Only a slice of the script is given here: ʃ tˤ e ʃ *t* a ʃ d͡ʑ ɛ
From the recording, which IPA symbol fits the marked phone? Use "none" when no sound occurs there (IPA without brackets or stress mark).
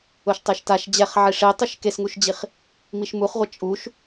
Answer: t